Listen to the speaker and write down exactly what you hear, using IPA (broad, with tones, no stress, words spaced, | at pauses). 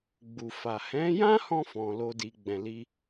ɡ͡bu˨fa˨ hɛ̃˨˦jã˦hɔ̃˧ fɔ̃˨lo˧di˨ ɡ͡bɛ̃˨li˧